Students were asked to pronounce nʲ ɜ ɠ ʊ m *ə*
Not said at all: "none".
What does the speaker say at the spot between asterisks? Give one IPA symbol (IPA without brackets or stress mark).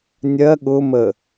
ə